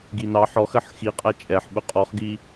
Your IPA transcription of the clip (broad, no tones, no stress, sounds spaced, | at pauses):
ɡ i n ɑ ħ ɔ x ɜ ħ x i qʼ æ t͡ʃʼ ɛ ħ ɓ ʊ qʼ ɔ χ ɡ i